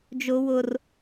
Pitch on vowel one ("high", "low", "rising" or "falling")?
high